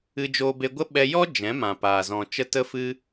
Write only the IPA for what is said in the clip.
ɨ˧d͡ʒoː˧be˧ɡʷə˦ ɓɛ˧jɔ˦ d͡ʒɛ̃˨˦mã˨paː˨ zɔ̃˨t͡ʃə˦ tə˦fɨ˦

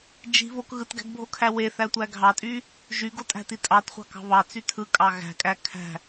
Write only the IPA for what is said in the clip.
d͡ʒi̤ βok ɣɯtɡæ̤ɡbʱokʰæ weθætʷæ ɡʱɑtʼy | ʒyɡotʼæ̤ti tʼɑtχʷɑ̤kɑ̤ βɑt͡sy tʰɯkʼɑ ɣæ̤kʼæ kʰæ̤

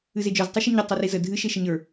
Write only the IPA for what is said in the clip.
ɨzed͡ʒə˞z tˤɨʃɨɲə tˤerizə dʱɨ ʃeʃəɲə˞

